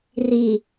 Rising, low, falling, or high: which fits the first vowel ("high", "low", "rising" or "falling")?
low